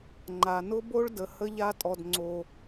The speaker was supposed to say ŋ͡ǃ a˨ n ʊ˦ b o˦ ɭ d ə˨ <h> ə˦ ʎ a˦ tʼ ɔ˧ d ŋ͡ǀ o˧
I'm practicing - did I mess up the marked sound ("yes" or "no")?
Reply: no